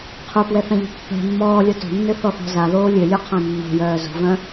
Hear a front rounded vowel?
yes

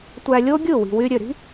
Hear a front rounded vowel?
yes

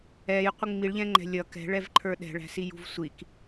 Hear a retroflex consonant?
yes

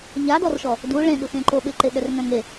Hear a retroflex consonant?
yes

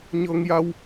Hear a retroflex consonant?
no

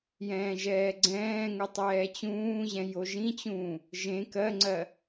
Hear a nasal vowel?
yes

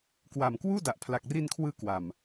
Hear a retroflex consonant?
no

